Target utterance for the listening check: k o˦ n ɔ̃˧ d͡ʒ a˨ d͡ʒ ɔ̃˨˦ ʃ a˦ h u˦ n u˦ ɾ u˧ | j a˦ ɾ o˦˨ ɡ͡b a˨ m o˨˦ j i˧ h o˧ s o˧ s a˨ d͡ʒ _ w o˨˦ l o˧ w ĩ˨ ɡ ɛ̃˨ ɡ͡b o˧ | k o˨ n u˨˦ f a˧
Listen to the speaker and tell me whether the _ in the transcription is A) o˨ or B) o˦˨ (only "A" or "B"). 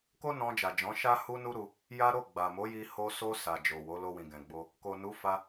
A